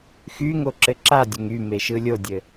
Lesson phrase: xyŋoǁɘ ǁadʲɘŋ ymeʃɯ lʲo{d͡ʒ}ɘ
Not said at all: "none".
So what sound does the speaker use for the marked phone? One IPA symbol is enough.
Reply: dʲ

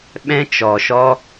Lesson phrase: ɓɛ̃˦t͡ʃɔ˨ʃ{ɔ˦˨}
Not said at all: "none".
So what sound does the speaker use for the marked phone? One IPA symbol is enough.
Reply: ɔ˦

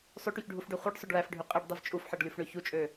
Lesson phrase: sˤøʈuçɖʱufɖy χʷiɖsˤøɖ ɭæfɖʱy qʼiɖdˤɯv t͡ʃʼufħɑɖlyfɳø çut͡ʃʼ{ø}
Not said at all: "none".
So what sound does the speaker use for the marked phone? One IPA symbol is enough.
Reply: ø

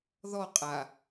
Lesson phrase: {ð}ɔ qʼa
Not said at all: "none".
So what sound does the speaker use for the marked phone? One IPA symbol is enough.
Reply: ð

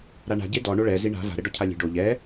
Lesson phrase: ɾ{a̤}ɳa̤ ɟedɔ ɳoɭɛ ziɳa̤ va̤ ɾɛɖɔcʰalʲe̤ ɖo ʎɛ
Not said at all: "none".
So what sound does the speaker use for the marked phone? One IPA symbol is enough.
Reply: a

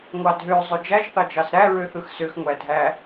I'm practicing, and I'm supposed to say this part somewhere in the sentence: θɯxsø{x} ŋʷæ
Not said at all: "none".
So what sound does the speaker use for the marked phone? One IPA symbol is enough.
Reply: x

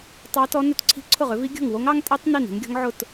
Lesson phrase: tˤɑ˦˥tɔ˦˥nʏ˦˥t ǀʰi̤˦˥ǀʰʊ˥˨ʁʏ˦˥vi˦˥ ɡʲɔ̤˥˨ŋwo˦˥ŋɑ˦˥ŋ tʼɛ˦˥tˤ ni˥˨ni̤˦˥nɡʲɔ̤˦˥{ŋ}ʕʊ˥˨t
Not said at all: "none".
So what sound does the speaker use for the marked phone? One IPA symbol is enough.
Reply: ŋ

